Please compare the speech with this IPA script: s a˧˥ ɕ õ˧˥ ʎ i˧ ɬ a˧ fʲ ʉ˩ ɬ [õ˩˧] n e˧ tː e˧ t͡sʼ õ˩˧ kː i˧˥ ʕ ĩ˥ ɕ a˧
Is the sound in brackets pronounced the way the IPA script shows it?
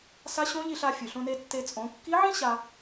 no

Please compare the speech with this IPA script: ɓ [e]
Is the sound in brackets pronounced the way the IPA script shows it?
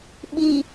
no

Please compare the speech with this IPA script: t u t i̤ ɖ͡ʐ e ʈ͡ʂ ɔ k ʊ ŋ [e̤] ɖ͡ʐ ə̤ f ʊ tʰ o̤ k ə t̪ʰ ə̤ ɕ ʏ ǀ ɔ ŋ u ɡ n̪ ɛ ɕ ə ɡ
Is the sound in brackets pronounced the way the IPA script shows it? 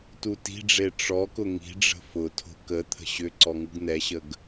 no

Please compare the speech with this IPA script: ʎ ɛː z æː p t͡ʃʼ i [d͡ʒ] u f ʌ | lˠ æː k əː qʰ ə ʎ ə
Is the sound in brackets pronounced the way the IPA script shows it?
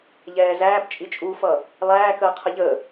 no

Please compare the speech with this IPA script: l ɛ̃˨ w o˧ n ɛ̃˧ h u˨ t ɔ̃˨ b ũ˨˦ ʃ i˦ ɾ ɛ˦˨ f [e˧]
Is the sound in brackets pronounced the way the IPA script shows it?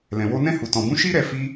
no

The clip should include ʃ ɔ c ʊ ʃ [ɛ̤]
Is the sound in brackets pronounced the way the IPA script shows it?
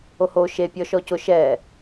no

